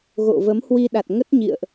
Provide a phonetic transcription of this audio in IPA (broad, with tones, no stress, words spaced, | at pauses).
ɣo̰˧˨və˨˦m hwi˧ɗa˨˩t̚ŋə˦˥t̚ ɲḭ˧˨ə̯ʔ